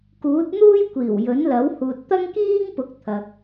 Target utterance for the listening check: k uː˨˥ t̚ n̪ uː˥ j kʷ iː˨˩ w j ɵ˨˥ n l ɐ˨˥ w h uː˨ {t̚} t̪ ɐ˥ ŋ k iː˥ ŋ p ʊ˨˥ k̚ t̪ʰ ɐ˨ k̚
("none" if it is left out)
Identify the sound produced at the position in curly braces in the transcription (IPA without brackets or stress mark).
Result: t̚